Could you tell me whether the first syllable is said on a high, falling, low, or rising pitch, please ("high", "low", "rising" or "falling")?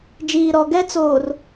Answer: low